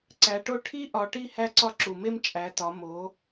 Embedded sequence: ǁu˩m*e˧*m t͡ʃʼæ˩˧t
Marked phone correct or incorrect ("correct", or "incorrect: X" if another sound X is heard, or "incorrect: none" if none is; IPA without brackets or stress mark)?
correct